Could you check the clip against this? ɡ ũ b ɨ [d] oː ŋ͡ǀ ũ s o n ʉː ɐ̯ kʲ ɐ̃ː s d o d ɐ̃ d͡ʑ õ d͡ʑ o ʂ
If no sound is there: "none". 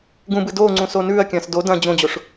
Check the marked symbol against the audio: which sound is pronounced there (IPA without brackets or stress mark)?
d